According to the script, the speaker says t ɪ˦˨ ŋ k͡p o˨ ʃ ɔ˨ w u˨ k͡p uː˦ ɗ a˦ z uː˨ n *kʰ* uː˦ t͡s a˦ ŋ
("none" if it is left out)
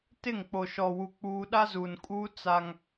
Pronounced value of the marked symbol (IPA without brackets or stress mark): kʼ